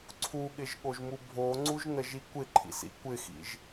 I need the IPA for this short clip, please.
ǀʰ u ɠ ɪ ʒ ɠ o ʒ m u bʱ o ŋ͡ǀ u ʒ n ə ʒ i kʷ ɪ ǃʰ ḭ s ḭ kʷ ɪ x ḭ ʒ

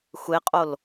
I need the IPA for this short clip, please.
xʷ e qʼ o l

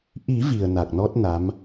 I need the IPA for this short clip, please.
ʔ i˨˩˦ v i˨˩ ə̯ n a˨˩ k̚ n ɔ˦˥ t̚ n a˧˥ m

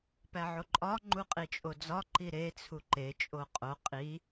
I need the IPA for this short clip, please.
p æ ʕ o ǃʼ ɒ ŋ͡ǃ u qʼ i t͡ʃʼ o d͡z ɒ ǃ i ɾ e t͡sʰ u ǃ e t͡ʃʼ o qʼ o qʼ i

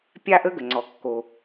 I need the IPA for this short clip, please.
pʲ a˥ ʔ ə˥ ɡ ə˩ ŋ͡ǀ ɔ˩ kː o˩

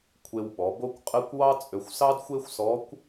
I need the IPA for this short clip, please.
kʷʰ e˧ w ɓ ɔ˩˧ b o˥ kʷ qʼ ɘ˧˥ kʷ w ɑ˥ t͡sʼ ø˧ xʷ s ɑ˥ d xʷ e˥ xʷ s ɔ˧˥ kʷ

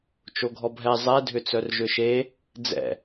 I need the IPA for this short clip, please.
t͡ʃ o ɡʱ ɔ bʱ ɛ zˤ ɛ dʱ ʏ t͡s œ r ʒ ʏ ʃ e | d͡z ɛ̰

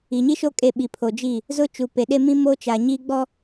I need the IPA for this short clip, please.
i˨ ɲ i˦ ʃ o˦ kʼ e˦˨ ɓ i˨ pʰ o˨ d͡ʒ i˦˨ | z ʊ˦ t͡ʃ u˨ p e˨ ɗ e˦ m ĩ˦ m o˦ t͡ʃ a˨ ɲ i˦ ɡ͡b ɔ˦

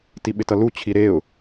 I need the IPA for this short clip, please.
t i ɓ ɪ t ʌ l u t͡ɕʰ i ɾ e ʊ̯

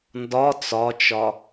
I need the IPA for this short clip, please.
n d ɒ t͡s ɒ t͡ʃ ɒ

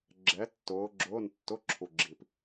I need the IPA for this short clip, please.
ɡ͡ǁ ɛ˨˦ tː ʊː˨˦ ɡ͡ǁ ʊː˧˥˧ n tː ʊ˧˥˧ ǁʰ u˨ ɡ͡ǁ i˨ p

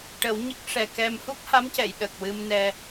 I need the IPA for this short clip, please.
ʈ ə˨˩˦ w ɲ ə˦˥ k̚ ʂ ɛ˨˩ k ɛ˧ m h u˦˥ k̚ h a˧˥ m c ɛ˨˩˨ j ɗ ə˨˩ k̚ w ɨ˧ m n ɛ˧

